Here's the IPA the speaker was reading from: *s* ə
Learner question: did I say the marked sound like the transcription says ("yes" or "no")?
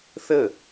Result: no